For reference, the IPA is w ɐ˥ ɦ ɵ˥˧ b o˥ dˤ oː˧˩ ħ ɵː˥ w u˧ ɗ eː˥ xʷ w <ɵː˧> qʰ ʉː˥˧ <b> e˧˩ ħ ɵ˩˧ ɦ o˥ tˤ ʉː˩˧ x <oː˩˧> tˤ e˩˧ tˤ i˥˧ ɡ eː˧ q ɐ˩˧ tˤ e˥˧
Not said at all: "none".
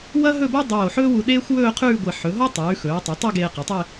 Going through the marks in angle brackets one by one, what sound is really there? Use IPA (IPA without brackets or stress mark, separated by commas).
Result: ɵː˥˧, ɡʷ, ɵː˩˧